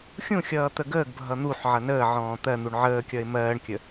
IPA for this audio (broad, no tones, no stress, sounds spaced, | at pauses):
xʲ ũ xʲ ʌː t̪ ə ɡ əː ɡ bʱ ʌ n̪ u ħ ʕ ʌ n əː ʕ ɔ̃ː t̪ ɜ n̪ u ɳ ʕ əː kʲ ʌ ɪ̯ m ɜː ɳ kʲ ə